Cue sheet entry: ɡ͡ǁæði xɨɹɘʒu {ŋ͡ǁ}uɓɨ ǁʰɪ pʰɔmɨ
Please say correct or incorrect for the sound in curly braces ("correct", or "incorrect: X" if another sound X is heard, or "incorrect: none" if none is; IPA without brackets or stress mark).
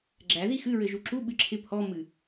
incorrect: ǁ